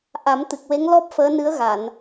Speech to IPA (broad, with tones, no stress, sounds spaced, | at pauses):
ʔ a˨˩˦ m t̪ ɨ˨˩ k̚ w e˧˥ ŋ l ɔ˦˥ p̚ f əː˧˥ n ɨ˧˥ ə̯ ɣ a˨˩˨ n